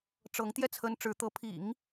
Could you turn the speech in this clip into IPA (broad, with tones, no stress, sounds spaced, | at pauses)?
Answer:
ʈ͡ʂ ɤ˧˥ ŋ t̪ j ɛ˥˩ t͡sʰ ə˥ n ʈ͡ʂ ɻ̩˧˥ t̪ ɤ˧˥ pʰ ḭ˨˩˦ ŋ